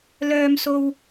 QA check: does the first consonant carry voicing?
yes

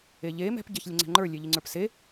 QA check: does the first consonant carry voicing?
yes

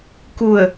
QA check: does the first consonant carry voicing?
no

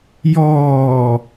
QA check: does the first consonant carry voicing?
yes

